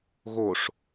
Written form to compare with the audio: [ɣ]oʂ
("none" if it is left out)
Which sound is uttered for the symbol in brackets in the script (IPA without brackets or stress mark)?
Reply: ɣ